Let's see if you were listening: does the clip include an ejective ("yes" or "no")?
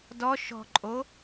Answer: yes